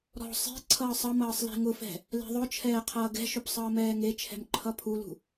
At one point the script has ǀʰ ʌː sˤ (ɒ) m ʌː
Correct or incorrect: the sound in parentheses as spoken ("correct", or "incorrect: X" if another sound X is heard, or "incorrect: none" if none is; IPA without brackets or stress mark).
incorrect: ʌ